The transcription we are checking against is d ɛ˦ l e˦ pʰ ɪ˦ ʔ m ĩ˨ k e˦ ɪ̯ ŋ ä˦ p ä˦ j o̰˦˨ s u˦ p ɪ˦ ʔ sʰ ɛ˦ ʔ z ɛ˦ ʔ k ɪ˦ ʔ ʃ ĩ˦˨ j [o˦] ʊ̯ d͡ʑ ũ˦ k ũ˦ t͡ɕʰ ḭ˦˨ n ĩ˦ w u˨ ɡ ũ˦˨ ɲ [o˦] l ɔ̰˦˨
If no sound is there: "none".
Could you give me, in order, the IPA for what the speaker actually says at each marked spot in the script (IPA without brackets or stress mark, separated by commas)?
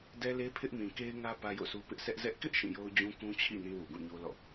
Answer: o˦, o˦